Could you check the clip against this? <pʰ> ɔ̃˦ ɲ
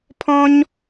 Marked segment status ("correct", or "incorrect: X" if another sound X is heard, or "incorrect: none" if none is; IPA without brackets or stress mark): correct